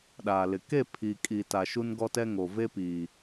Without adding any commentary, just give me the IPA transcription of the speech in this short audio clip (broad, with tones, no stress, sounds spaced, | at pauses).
ɗ aː˨ l ɪ˨ k e˦˨ pʰ i˨ kʼ i˨ t a˨ ʃ u˦ n ɡ ɔ˦ t ɛ˦ ŋ o˨ v e˦ p iː˨